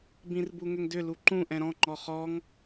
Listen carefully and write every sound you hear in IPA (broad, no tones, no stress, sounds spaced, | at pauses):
b ĩ r b u ŋ ʏ ŋ d ʏ l u ǃ ũ ʔ ɛ̃ ɾ ɔ̃ ŋ͡ǃ ɔ χ ɔ ŋ